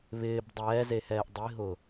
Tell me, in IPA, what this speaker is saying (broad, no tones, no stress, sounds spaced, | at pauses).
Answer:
β ɪː b dˤ ɛː z e h ɛː ʔ dˤ i ɦ ʊː